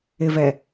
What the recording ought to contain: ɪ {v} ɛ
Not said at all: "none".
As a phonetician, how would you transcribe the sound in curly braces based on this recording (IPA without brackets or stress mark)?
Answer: v